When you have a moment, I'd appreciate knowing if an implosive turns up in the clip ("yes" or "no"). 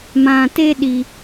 yes